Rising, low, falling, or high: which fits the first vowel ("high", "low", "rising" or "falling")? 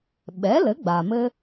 rising